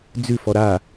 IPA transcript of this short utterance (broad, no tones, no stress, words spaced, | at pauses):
d͡zʉfɔ ɾa